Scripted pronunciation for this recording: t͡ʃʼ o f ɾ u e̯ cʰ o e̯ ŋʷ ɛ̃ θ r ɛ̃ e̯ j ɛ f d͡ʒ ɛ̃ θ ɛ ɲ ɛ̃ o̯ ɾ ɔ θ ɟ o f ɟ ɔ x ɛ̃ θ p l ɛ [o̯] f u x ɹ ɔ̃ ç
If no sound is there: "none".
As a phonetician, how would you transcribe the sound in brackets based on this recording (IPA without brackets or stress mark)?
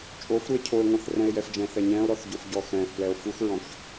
o̯